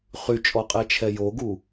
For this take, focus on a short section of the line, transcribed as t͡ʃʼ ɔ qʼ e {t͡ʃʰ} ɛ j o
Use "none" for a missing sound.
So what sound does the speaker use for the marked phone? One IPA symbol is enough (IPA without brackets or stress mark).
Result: t͡ʃʰ